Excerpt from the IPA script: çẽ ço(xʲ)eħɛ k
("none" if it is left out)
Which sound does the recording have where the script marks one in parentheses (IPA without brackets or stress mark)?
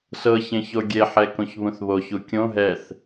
ɡʲ